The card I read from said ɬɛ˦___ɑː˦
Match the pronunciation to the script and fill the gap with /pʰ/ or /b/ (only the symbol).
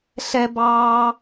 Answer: b